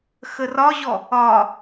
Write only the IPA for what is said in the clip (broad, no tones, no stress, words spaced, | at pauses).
xərɒʑɔ | ɒ